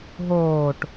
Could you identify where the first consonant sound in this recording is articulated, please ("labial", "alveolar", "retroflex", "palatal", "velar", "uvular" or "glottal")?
glottal